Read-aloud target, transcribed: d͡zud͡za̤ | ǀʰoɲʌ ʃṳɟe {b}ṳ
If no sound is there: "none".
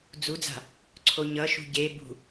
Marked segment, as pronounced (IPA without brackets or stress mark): b